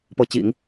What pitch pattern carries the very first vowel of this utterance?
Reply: rising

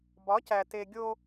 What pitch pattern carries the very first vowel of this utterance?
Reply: rising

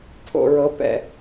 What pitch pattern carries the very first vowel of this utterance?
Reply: low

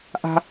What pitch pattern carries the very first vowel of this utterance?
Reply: high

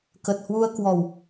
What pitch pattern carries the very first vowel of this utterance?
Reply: low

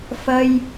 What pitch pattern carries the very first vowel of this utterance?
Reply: high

